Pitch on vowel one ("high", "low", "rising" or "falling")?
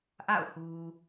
falling